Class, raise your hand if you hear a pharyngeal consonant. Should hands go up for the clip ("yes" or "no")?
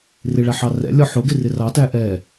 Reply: yes